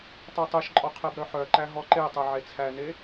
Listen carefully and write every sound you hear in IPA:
tˤ e tˤ e ʃ ǃʼ ɔ qʰ e b ɾ œ ħ œ ǃ æ ɦ ɔ ǃ e tˤ œ ʕ e t͡sʰ æ n e

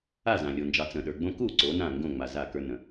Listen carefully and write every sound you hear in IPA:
a˥˩ z ã˩ lʲ o˩ n d͡ʒ ɑ˩˧ t͡s ə̃˩ ɗ ə˞˩ ɡ͡b õ˦ k u˥˩ ǀ o˩˧ n ã˥˩ ŋ ɡ õ˥˩ ŋ͡m a˩ z a˥˩ k ə˞˦ n ə̃˩˧

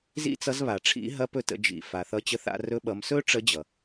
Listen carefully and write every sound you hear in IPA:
z ḭ˥ t͡s ʌ˧˥ z β a˩ ʈ͡ʂʰ ḭ˧˥ ɦ ɐ˧˥ p ɵ˧ t ə̰˩˧ d͡ʒ ḭ˩ f a˩ θ ʌ˧˥ t͡ɕ ə˧ θ a̰˧ r ɵ˧ ɓ ʌ˩˧ m s ɵ˥ ʈ͡ʂ ə˧˥ d͡ʑ ʌ˩

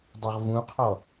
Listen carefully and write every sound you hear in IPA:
dˤ u ʁ v ũ qʰ ɔ

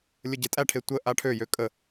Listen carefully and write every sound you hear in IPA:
lʲ ə ɟ e tʼ æ ʈʰ e tʷ ə ʔ a ʈʰ ø j ø kʼ ə

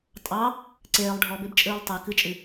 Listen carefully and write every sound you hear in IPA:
tʼ ɑ | ǀ eː lˠ ɖʱ ɔ b e b t͡ʃʼ ɨː lˠ tˤ e k ɨ t͡ʃʼ ɨ

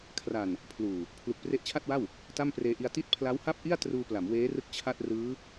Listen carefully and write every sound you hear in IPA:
kʰ r a˨˩ n | pʰ l uː˨˩ | pʰ l u˨˩ k̚ p r e˦˥ ʔ t͡ɕʰ a˥˩ t̚ w a˥˩ w | t a˥˩ m p r eː˧ ʔ i˧ a̯ t i˦˥ t̚ pʰ l a˦˥ w h a˥˩ p̚ ʔ i˥˩ a̯ t r uː˧ p l a˩˦ m w eː˦˥ r ɯ˦˥ k̚ t͡ɕʰ a˥˩ t̚ r ɯː˦˥

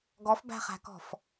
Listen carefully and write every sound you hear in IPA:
ɡ ɔ f b æ̤ χ æ̤ k ɔ̤ f

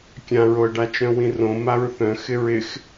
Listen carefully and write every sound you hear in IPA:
kʲ ã ɹ o ə̯ ɖ a t͡ʃ œ̃ w ĩ r õ m a ɹ θ œ̃ x ɪ ɹ ɪ x

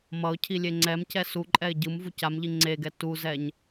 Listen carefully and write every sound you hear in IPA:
m ʌ ʊ̯ cʰ i lʲ e ŋ͡ǀ ɛ m c ɛ s u ǃʼ ɛ ɪ̯ ɟ ɯ m v u c a m ʎ i ŋ͡ǀ e ɡ ɛ t u z ɛ ɲ

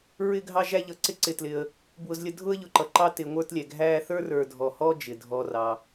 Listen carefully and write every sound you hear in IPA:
ɹ ɪ˦ ɡʱ ɑ˦ ʒ æ˦ ʎ ʌ˨ ǀ ɪ˦ ǀ ɪ˨ t l ɪ˨ ə̯ | b w ʊ˦ z lʲ ə˦ dʱ ʊ˥ ə̯ ʎ ʊ˨ ǃ ʌ˨ ǃ ɑ˦ t ɪ˨ ŋʷ ə˞˦ t lʲ ɛ˩ ɡʱ æ˦ θ ə˞˥ r ə˞˨ dʱ ɔ˨ h ɔ˥ d͡ʒ ɪ˩ dʱ ɔ˨ r ɑ˩

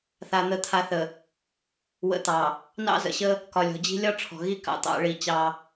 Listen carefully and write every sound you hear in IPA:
θ a˨ n̪ ə˨ t̪ʰ a˨ θ ə˨ | w ə̰˨˦ t̪ ɑ˨ | n ɑ̰˦ z ə̰˨ ɕ ə˦ | k ɒ˨ lʲ ɔ̤˨ d͡ʑ i̤˦ lʲ ɒ˦ ʈ͡ʂʰ ɔ̤˨ ɣ i˦ k ɑ̰˨ t̪ ɑ̰˨˦ ɭ i˦˨ t͡ɕ ɑ˦

